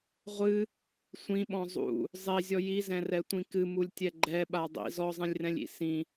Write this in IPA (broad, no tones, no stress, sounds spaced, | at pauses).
ʁʷ ɨ | sʷ ĩ ɓ ɔ̃ zˤ ṵ | zˤ i zʲ ɔ j i z ɛ̃ r ɛ tʷ ĩ k ɨ m u lʲ tʲ ɛ ɡ͡ǃ ɛ ɓ a dˤ ḭ z ɔ zˤ ĩ lʲ r ɛ̃ lʲ ḭ s ĩ